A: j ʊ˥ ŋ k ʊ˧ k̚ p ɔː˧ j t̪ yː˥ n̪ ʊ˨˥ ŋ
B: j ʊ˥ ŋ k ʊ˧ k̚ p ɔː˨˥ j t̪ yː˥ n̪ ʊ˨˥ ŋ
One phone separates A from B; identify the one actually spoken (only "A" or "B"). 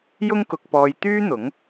A